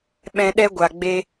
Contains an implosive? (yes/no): yes